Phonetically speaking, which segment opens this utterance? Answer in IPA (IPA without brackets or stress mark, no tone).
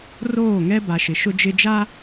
r